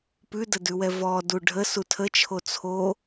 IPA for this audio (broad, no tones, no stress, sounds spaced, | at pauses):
p ʉ d ə d ʉ w ɛ v ɔ d u ɖʱ ə s u tʰ ə t͡ʃʰ o t͡sʰ o